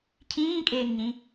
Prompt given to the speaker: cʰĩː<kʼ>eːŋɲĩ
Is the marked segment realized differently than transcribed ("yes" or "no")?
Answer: no